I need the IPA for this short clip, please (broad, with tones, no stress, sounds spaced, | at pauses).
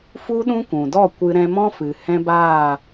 f u˦ ɗ ũ˦ kʷ ũ˨ d ɔ˦˨ kʷ ɨ˧ ɾ ɛ̃˧ m ɔ̃˦ f ɨ˨ h ɛ̃˦ b aː˦˨